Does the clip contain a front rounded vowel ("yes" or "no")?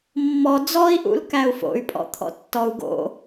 yes